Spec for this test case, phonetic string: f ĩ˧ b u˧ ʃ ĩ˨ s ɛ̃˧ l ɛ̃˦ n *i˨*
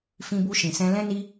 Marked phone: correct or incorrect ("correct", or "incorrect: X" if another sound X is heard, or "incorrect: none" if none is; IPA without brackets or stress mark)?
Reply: incorrect: i˦